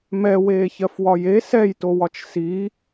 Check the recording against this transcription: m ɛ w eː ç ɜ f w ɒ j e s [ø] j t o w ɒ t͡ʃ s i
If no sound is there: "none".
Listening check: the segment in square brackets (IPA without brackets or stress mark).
ɛ